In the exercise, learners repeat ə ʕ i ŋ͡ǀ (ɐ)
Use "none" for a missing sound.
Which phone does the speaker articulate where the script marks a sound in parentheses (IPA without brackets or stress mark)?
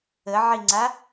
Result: a